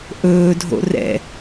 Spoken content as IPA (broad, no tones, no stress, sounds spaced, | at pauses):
ʔ ɵː dʱ o̰ r ɛ̰